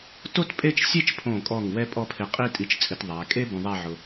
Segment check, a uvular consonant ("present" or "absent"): present